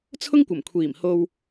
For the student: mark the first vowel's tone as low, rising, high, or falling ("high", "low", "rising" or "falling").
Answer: high